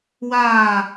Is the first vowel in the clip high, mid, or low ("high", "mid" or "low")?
low